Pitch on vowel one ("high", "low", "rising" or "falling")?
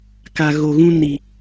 low